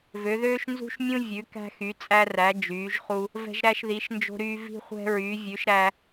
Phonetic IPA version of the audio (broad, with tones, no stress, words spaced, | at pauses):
vø˨˦ ðøː˦ʃnzṳ˦ʃmʲũ˦ vʲʉ˨˦kæ̤˦xy˨˦ t͡sʼæ˦ræ˨˦ d͡ʒyː˨˦ʒχu˦ | vɛ̤˦ʒɾæ˦ʃði˨˦ʃ nd͡ʒo̤˦ɾyː˦ vi̤˦χʷɛ̤˦ɹyː˨˦ vʲʉ˨˦ʃ ɾæ˦